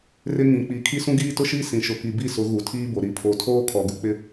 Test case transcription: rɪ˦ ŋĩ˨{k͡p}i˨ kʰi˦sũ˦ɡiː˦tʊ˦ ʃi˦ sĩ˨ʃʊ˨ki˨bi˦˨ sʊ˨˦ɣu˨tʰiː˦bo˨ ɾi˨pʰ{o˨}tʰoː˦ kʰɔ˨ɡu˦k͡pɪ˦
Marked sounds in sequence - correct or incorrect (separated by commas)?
correct, correct